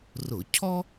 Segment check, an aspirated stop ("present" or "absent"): present